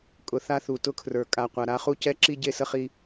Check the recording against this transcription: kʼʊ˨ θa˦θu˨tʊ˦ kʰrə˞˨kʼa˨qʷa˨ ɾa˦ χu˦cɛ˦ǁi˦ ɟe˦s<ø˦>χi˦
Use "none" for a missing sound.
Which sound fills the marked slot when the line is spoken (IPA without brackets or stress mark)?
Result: ə˦